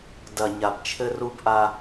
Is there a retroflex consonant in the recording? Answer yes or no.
no